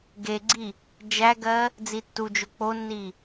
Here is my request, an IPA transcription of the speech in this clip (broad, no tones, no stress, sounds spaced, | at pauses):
ɡ e ɡ͡ǀ i | d͡ʒ æ ɡ ɜ | d͡z i tː u d͡ʒ o k͡p o nː i